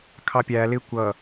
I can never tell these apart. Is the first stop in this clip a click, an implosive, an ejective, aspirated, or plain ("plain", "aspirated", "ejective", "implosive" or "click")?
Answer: aspirated